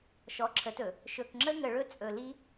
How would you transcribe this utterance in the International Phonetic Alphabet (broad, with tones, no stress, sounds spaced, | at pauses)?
ʃ ɔ˨˦ ǁʰ ə˨˦ t ɵ˨ | ʃ ɵ˨ k ŋ͡ǁ ə˦ ŋ ə˨ ɭ ɵ˦ t͡sʼ ɵ˨ l i˦